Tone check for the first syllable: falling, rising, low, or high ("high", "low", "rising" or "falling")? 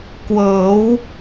rising